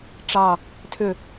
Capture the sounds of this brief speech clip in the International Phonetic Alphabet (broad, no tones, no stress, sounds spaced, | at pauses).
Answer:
ʈ͡ʂ ɑ | tʰ ʏ